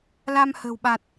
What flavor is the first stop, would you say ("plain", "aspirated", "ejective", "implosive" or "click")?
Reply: implosive